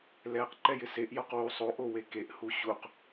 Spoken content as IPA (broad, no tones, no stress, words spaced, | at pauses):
lɛq ǃɛjɪseʔ jɔqwu sˤoʔ owekeʔ huɕuq